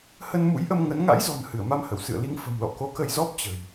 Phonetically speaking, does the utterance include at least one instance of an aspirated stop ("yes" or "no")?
no